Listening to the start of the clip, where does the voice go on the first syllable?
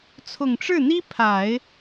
low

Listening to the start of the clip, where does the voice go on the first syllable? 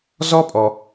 high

